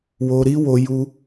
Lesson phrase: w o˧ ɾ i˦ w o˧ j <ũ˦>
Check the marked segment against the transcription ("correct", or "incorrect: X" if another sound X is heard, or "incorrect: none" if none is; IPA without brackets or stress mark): incorrect: u˦